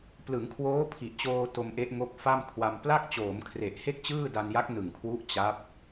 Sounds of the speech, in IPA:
p l ɯ˩˦ ŋ kʰ w oː˦˥ pʰ i˨˩ ʔ t͡ɕ oː˧ t o˧ m ʔ e˦˥ ʔ ŋ o˦˥ k̚ f a˥˩ m kʰ w a˧ m p l a˥˩ k̚ t͡ɕ oː˩˦ m kʰ r e˨˩ ʔ h e˥˩ k̚ t͡ɕ ɯː˥˩ d a˧ n j a˦˥ k̚ n ɯ˨˩ ŋ kʰ w u˦˥ ʔ t͡ɕ a˦˥ p̚

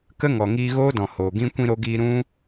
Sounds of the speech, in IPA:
k ə˦ ŋ ɔ˨ ŋ iː˧ ɣ oː˦ d ɔ̃˨ h oː˨ ɡ ĩ˦ kʷ ĩ˦ ɾ o˦ ɡ iː˦ ɾ ũ˦

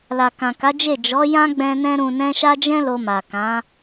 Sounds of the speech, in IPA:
l a˨ k ã˨ k a˨˦ d͡ʒ e˦˨ d͡ʒ ɔ˨˦ j ã˦ ɡ͡b ɛ̃˧ n ɛ̃˦ ɾ ũ˧ n ɛ̃˦ ʃ a˦ d͡ʒ ɛ̃˦ l o˧ m a˨ k ã˨˦

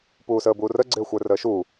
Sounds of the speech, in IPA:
p uː s əː b uː r ə ɡ͡ǀ ɪː xʷ ə˞ r əː ʃ uː

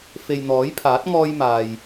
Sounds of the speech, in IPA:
f e˨ j n̪ ɔː˨˥ j pʰ aː˨˥ t̚ ŋ ɔː˥ j m aː˨ j

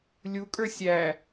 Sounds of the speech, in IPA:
lʲ u kʼ ə˞ sʲ æ

